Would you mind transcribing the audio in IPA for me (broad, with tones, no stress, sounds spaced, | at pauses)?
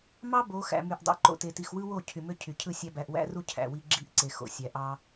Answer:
m ɑ˦ b o˨˦ x æ̰˨ m y˨ ʔ dˤ o̰˨ ǃ o̰˨ t e˨ t i˨ x w ɯ˦ w o˦˨ cʰ y˨ m ø˦ cʰ y˨ cʰ ɯ˦˨ sʲ æ˦ b æ˨ ʔ w æ̰˦ r u˦ cʰ æ̰˨ w i˦ ɡ͡ǁ i˦˨ ʔ ǀ e˨ x o̰˨ sʲ æ˨ ʔ ɑ˦